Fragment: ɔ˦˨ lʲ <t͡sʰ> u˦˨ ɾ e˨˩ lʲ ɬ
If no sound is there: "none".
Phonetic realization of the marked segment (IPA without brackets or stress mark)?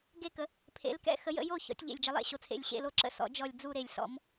d͡z